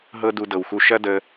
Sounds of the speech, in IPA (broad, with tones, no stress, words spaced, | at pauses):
ɦɤ˦ du˧dɤ˨wxu˧ ʃɐ˦də˧